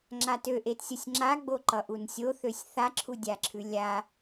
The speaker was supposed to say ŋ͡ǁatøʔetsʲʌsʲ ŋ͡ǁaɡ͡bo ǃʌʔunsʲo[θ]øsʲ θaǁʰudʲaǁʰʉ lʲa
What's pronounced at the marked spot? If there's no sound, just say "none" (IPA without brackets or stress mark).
θ